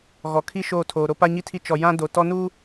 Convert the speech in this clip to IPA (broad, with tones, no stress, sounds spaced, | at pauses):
ɣ ɔ˨ kʰ i˦ ʃ oː˦˨ tʰ oː˨ ɾ o˦ p a˦ ɲ i˦ tʰ i˦ t͡ʃ ɔ˨ j ã˦ d o˨ t ɔ˦ n uː˦